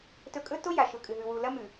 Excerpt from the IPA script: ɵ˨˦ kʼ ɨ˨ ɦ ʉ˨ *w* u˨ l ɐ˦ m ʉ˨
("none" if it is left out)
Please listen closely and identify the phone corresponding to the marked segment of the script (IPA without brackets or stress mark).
w